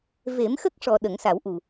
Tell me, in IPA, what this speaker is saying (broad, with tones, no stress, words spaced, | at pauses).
ve˨˩˦mxə˦˥k̚ʂɔ˨˩ ɗə˨˩˦ŋsa˨˩˦wʔu˨˩